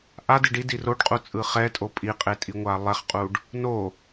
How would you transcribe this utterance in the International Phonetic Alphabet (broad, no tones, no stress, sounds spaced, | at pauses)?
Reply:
ʔ a d i ɖ i d i r o ɖ qʼ u t͡sʼ ɯ χ ɛ tʼ o pʼ i qʼ e tʼ i ŋʷ a lˠ ɛ χ qʼ u ɖ | n o